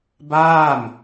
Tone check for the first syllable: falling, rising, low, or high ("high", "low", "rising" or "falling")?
falling